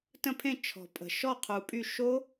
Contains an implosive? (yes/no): no